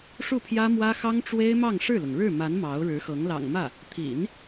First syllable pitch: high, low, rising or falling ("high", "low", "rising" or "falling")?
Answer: falling